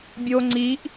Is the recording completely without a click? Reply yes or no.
no